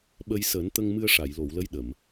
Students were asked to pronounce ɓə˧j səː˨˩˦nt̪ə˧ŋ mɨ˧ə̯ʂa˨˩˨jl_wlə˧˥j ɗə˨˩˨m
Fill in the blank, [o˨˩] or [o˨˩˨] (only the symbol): o˨˩˨